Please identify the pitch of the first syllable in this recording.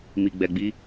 low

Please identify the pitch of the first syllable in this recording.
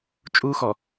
high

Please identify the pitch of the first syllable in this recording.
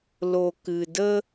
low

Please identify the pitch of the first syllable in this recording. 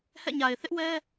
falling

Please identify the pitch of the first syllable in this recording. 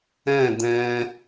falling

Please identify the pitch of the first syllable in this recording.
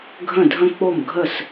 falling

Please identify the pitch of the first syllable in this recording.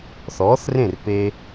rising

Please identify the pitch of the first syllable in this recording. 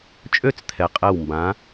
falling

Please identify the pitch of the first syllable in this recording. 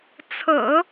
low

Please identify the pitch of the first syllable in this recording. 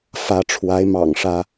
rising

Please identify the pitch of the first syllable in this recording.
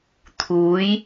rising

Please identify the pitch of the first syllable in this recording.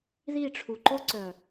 falling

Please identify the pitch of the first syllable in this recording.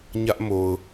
high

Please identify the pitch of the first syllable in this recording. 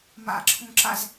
low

